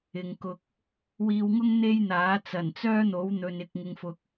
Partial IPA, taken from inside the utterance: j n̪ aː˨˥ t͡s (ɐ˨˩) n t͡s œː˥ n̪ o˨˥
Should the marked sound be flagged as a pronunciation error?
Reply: no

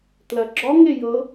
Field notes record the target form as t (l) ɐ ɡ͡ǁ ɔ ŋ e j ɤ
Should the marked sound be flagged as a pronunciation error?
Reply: no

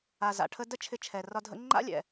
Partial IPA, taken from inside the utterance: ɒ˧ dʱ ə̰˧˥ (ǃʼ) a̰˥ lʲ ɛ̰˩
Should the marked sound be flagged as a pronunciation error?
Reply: yes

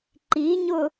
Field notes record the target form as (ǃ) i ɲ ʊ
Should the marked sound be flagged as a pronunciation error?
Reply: no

